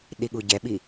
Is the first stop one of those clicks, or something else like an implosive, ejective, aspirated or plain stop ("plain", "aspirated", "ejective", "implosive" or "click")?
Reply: implosive